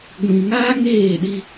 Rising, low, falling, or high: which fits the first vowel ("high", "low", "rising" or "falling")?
low